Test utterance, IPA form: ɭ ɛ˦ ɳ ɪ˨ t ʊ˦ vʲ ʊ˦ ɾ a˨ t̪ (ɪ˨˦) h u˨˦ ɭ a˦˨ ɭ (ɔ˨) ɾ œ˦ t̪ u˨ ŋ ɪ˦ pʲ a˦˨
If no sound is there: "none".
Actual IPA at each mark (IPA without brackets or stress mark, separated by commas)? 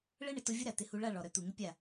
ɪ˨˦, ɔ˨